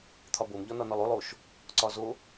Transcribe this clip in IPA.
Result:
t̪ʰ ɒ b o m ʎ ɒ n ɒ n ɒ lˠ o lˠ o ʃ | ǀ ɒ z o

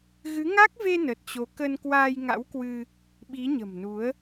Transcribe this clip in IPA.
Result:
ɣ ɨ˨˦ ŋ a˦˥ k̚ v e˧ n ə˨˩ t̚ t͡ɕ o˨˦ k ə˧ n k w aː˧ j ŋ a̰˧˥ w k w ɨ˧ | ɓ i˨˦ ɲ ə̤˨˩ m n u˨˦ ə̯

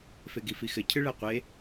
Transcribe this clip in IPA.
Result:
f e ɡ i f i x ɘ cʰ ɨ ɭ æ qʷ e

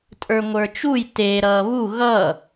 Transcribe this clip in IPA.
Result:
tʼ ə˞ ŋʷ ə˞ t͡ʃ u j t e ɾ ʌː β u ɣ ʌ

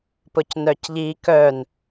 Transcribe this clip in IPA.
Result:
p ʊ c n œ c ʎ i k œ n

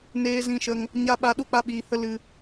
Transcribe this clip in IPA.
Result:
n eː˧ z ĩ˧ ʃ ə˧ ŋ | ɲ a˦ ɓ a˦ ɗ u˦ k͡p a˦ ɓ iː˧ h ə˦ l ɨ˧

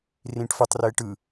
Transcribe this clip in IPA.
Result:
r ĩ ʈ f ə tˤ r e ʈ ɯ

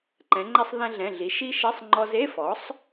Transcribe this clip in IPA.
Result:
ǃ ɛ̃˩˧ ŋ͡ǃ ɛ˧ sˤ ð ɛ̃˧ ɮ ɛ̃˩˧˩ ɮ i˩˧ ʃ i˦˥ ʃ ɛ˧˥˧ sˤ ŋ͡ǃ ɔ˧ z e˧˥˧ f ɔ˩˥ sˤ

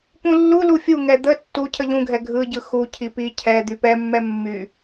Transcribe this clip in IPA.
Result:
p ũ lː u l u fʲ u ŋ ɛ d̪ ə tː u cʰ ə ʎ ũ ɡʱ ɛ ɡʱ ɯ ɟ ɯ x u cʰ i p i cʰ ɛ d̪ y p ɛ mː ɛ mː y

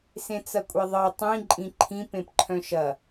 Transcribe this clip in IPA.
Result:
s ẽ t͡s ɐ kʷʼ e ðˤ ɤ tˤ ĩ ǃʼ ĩ ǃʰ ĩ p ẽ p ǃʰ œ̃ ʃ ɐ

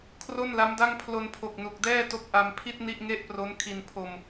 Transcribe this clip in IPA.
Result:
kʰ r o˥˩ n l a˦˥ m d a˥˩ ŋ pʰ l o˧ n pʰ o˨˩ k̚ n u˨˩ k̚ d ɛː˥˩ t o˦˥ k̚ ʔ a˧ m pʰ i˥˩ t̚ n i˥˩ ʔ ŋ e˥˩ ʔ p r o˦˥ n kʰ i˧ n pʰ o˧ m

